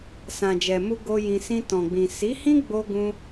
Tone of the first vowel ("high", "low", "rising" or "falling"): low